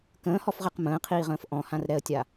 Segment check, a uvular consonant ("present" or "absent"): present